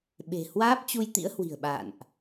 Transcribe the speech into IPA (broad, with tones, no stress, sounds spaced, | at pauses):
ɓ e̤˨˩ h w aː˦˥ p̚ t͡ɕ u˧ j t̪ ḭ˧˥ ə̯ h w i̤˨˩ ə̯ ɓ a̰ː˧˨ n ʔ